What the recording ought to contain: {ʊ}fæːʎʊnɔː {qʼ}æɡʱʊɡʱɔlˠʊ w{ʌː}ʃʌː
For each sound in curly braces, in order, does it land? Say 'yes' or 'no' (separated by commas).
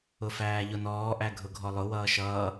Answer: yes, no, yes